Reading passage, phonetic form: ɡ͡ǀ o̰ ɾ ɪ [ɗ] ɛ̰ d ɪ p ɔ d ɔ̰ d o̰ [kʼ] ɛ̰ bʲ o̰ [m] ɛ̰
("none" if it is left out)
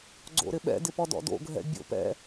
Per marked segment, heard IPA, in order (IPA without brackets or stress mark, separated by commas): ɓ, ɡʱ, p